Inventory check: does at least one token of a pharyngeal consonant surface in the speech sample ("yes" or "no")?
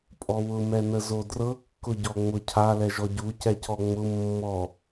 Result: no